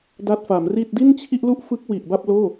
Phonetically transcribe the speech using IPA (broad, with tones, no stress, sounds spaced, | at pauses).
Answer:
d a˦˥ t̚ f a˩˦ m r i˥˩ t̚ d i˥˩ n t͡ɕʰ i˥˩ ʔ l u˥˩ ʔ f ɯ˦˥ k̚ w i˨˩ ʔ b a˥˩ p̚ l oː˥˩